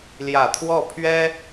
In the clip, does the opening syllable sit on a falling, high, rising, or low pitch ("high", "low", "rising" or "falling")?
low